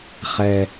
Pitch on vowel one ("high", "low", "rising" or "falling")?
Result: low